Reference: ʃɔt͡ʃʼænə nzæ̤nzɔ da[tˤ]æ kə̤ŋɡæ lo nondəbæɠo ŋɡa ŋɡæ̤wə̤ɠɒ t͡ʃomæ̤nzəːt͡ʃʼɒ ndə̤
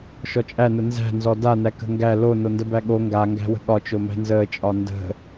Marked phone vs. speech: incorrect: n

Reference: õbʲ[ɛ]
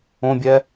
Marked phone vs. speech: correct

